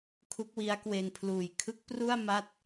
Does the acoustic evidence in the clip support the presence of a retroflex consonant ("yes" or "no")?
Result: no